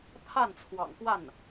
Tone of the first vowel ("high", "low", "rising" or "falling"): falling